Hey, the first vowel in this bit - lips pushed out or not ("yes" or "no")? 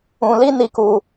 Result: yes